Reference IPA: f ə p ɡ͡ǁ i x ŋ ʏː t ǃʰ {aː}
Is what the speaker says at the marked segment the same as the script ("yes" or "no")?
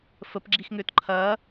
no